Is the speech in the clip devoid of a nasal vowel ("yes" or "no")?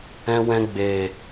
no